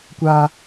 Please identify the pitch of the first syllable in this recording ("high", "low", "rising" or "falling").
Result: low